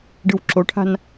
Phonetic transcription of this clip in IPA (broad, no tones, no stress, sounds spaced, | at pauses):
ɖ ɯ w ǁ o ʈʰ a̤ n